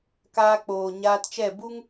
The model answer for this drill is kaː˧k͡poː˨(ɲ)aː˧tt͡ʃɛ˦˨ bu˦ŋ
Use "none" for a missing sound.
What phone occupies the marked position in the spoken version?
ɲ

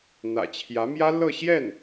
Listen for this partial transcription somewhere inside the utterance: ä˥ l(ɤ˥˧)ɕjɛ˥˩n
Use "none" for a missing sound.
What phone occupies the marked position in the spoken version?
ɤ˥˧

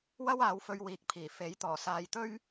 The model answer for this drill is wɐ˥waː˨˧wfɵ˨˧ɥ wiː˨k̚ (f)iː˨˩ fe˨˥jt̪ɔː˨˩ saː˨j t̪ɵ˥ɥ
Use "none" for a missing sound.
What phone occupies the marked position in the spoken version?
pʰ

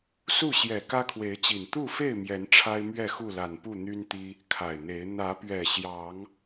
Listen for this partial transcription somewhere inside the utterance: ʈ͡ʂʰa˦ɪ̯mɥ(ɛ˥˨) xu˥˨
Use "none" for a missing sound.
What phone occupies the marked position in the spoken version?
ɛ˥˨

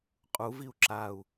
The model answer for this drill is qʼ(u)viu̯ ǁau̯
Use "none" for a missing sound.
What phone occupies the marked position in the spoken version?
u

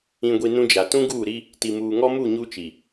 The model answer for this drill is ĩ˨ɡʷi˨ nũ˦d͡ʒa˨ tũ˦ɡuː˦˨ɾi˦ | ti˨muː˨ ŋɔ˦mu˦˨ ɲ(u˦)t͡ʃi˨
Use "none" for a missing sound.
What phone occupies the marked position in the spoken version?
u˦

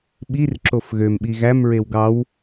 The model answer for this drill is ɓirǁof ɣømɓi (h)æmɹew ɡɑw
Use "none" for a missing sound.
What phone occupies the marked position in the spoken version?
ɣ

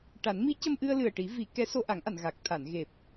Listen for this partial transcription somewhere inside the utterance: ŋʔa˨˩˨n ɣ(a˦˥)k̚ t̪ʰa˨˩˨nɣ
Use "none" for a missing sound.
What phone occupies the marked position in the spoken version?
a˨˩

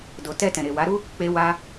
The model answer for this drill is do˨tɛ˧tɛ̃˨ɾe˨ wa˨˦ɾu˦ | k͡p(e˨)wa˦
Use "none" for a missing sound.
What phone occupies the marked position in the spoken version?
e˦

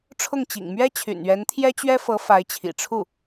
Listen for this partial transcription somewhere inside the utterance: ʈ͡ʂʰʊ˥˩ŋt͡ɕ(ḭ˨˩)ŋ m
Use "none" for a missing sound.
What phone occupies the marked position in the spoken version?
ḭ˨˩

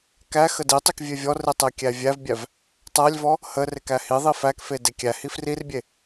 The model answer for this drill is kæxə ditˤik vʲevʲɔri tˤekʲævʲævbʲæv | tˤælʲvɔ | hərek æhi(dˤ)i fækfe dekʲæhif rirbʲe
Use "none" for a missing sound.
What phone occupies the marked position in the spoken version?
ðˤ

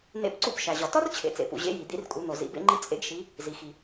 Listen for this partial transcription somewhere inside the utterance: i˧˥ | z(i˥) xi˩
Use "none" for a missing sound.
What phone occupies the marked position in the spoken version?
i˩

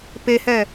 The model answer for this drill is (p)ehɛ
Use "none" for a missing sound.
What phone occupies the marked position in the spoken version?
p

